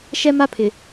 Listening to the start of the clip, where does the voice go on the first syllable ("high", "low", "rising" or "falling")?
high